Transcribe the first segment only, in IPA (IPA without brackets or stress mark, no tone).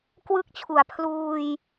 k